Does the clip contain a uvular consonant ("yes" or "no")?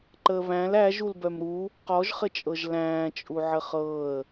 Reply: yes